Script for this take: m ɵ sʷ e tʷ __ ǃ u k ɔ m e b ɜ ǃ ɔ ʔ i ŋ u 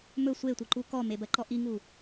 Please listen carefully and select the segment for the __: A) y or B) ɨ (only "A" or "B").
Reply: B